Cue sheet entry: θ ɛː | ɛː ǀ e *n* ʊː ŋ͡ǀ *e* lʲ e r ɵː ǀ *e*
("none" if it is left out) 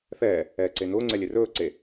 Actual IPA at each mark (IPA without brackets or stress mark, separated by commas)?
n, ɛ, e